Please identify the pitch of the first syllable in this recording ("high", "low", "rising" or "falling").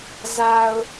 low